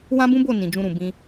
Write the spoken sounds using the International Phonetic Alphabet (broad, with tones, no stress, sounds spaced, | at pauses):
w ã˦ b ũ˦ b o˦˨ n ĩ˨ d͡ʒ ũ˧ ɾ ũ˨ b ĩ˧